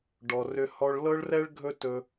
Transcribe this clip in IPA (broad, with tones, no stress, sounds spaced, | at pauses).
ɖ ɔ˨ r ʏ˧ h ɔ˧ ɭ l ɤ˦ ɭ r ɛ˦ ɭ ɡʱ ɵ˦ t ɵ˧